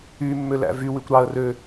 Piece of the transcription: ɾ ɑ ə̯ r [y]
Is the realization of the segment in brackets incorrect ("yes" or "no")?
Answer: yes